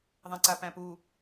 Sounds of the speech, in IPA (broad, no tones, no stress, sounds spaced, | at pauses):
ðˤ ɛ̃ ǀ a p æ̃ p u